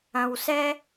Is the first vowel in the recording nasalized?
yes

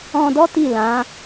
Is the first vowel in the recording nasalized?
yes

